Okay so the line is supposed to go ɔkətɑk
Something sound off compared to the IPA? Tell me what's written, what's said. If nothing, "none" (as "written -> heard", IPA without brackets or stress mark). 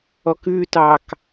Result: ə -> ʉ